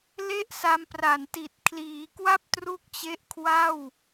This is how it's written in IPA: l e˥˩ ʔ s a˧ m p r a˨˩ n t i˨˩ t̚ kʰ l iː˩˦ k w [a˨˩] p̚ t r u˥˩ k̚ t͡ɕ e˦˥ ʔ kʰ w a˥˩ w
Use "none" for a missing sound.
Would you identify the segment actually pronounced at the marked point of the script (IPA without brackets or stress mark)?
a˥˩